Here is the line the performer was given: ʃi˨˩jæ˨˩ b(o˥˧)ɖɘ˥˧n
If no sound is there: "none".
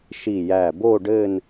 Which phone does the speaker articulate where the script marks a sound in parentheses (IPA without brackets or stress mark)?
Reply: o˥˧